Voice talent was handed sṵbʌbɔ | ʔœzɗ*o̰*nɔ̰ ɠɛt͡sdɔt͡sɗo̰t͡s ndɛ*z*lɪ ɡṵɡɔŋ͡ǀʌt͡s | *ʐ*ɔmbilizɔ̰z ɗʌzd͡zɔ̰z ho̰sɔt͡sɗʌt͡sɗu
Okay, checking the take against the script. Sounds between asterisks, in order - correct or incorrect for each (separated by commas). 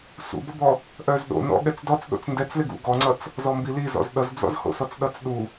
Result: correct, incorrect, incorrect